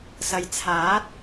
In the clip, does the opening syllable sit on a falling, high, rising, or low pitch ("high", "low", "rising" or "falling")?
low